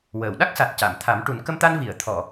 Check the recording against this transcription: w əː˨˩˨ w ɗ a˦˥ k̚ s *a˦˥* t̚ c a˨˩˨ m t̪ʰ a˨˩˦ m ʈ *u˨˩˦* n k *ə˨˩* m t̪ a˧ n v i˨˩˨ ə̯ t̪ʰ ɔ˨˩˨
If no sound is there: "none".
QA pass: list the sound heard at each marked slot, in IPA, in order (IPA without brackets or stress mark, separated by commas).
a˨˩, u˨˩˦, ə˧